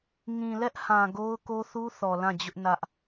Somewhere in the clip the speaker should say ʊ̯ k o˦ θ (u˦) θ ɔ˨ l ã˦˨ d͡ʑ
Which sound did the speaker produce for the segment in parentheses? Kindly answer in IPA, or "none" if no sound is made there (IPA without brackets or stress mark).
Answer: u˦